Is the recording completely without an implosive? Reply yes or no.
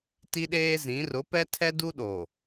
no